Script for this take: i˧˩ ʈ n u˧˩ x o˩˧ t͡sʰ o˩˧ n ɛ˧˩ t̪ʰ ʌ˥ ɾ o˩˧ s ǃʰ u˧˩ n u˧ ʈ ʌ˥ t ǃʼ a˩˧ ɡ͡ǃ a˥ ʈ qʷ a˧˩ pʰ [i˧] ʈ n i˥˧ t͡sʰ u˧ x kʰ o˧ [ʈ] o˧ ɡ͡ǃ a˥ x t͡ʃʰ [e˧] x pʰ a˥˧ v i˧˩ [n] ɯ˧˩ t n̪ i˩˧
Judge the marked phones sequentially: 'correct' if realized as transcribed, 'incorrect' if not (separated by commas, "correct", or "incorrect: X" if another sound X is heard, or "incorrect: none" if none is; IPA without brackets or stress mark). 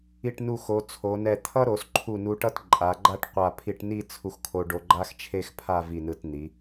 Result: correct, incorrect: ɖ, incorrect: e˥˧, correct